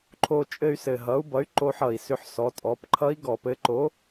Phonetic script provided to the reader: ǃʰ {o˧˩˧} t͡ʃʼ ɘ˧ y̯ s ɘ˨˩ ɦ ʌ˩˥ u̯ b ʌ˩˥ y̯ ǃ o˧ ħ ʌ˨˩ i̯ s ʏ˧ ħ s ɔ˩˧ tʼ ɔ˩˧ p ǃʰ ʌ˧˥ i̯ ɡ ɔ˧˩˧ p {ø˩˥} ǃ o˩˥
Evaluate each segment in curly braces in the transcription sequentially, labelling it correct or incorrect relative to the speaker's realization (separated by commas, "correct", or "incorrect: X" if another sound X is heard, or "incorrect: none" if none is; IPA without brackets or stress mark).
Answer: incorrect: o˧, incorrect: ɘ˩˥